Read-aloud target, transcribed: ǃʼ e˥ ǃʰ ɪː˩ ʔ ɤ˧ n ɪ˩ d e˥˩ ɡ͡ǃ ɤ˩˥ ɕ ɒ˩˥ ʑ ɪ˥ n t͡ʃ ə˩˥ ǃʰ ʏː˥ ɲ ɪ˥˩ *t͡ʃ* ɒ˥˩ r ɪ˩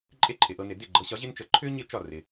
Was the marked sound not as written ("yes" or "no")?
no